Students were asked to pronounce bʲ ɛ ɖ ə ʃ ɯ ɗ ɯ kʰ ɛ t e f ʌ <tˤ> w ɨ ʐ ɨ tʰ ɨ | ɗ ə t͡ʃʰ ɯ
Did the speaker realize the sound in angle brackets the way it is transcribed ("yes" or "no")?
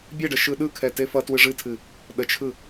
no